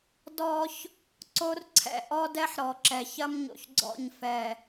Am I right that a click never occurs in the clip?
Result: no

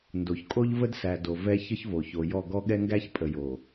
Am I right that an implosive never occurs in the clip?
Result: no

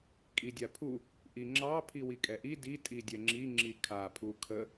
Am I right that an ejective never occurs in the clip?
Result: no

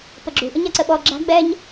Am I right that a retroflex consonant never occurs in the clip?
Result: yes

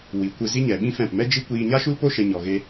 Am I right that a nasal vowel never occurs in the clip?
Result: no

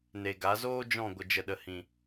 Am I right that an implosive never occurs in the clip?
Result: no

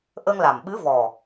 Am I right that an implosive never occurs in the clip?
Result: no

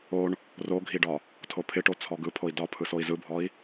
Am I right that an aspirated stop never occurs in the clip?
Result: no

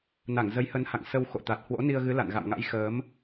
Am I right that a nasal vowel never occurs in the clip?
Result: yes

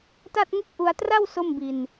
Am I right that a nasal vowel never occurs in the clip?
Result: yes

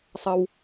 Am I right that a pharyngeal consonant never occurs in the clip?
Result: yes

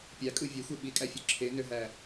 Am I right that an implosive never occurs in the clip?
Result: no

